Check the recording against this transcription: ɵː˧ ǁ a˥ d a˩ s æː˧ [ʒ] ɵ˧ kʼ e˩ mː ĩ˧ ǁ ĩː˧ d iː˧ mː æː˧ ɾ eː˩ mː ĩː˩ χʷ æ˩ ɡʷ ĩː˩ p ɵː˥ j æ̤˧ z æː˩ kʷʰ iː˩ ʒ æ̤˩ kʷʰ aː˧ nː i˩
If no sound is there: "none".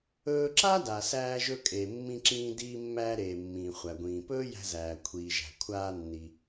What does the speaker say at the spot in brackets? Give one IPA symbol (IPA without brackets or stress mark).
ʒ